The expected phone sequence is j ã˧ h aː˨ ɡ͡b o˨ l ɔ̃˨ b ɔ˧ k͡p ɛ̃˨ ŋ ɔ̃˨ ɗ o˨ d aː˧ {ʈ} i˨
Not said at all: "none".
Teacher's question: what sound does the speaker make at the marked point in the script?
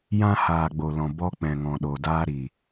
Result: ɾ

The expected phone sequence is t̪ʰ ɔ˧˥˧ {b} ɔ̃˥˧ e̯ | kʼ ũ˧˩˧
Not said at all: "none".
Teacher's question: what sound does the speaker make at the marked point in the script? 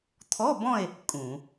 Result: b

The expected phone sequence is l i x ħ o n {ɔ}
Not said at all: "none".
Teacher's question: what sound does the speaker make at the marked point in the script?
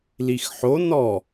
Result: ɔ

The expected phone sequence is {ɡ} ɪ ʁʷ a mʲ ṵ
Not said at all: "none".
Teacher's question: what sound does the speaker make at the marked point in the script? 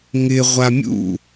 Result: ŋ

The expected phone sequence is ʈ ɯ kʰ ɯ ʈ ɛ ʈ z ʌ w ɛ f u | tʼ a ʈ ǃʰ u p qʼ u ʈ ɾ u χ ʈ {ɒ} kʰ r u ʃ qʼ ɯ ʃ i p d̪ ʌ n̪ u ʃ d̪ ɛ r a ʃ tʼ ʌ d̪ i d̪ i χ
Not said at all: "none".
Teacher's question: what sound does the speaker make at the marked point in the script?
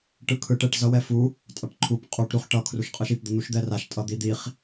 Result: ʌ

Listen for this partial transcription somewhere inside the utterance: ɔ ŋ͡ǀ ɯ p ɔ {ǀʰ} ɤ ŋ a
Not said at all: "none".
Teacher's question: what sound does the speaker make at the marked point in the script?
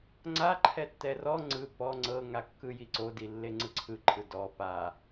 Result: ŋ͡ǀ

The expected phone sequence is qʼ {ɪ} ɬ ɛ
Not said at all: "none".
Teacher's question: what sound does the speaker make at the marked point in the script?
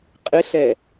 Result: ɪ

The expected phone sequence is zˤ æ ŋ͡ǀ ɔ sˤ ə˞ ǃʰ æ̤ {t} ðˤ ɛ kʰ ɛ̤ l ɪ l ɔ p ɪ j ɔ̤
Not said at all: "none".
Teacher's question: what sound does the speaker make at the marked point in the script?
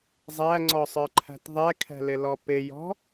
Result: t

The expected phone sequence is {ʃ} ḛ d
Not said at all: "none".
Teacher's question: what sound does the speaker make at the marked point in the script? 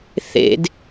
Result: θ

